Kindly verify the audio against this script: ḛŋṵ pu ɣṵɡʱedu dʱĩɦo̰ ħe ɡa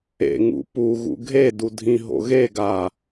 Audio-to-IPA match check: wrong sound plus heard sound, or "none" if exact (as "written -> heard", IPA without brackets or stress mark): ħ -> ɣ